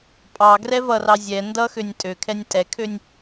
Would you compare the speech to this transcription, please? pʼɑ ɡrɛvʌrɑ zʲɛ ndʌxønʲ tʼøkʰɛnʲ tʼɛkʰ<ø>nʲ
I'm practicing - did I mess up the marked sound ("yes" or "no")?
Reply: no